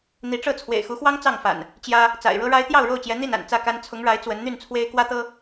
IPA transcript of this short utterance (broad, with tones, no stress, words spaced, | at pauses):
n̪i˨˦ʈ͡ʂɤ˥˨ t͡sʰwḛ˨˩ɪ̯xu˨˦xwɑ˦ŋ t͡sɑ˥˨ŋfa̰˨˩n | t͡ɕjä˦ | t͡sa̰˨˩ɪ̯ɻɤ˦ɻa˦ɪ̯ t̪jɑ˥˨ʊ̯ɻo˥˨ʊ̯t͡ɕjɛ˨˦ n̪i˥˨na̰˨˩n t͡sä˥˨ka˦n t͡sʰʊ˨˦ŋɻa˨˦ɪ̯ t͡swə˨˦nn̪y˥˨nt͡sʰwe˦ɪ̯ kwä˦t̪ɤ˦